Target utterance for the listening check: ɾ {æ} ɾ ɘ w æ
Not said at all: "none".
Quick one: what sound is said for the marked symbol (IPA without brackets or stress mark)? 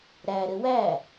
æ